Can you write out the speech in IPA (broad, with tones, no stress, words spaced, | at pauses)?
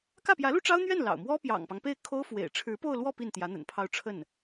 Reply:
kä˥˩pjä˧˥lu˥ʈ͡ʂɑ˥ʊ̯ n̪ɥɛ˥˩n lɑ̰˨˩ʊ̯mwɔ˥ pjɑ̰˨˩ŋpɑ˦ŋpe˥˩ɪ̯ kʰo˥ʊ̯fwḛ˨˩ɪ̯ ʈ͡ʂʰɻ̩˧˥po˥˧ʊ̯lwɔ˥˧ pi˥˩nt̪jä˧˥ n̪ə̰˨˩npʰɑ˥˧ʊ̯ʈ͡ʂʰə˥˩n